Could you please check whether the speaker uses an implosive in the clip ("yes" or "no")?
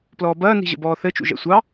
no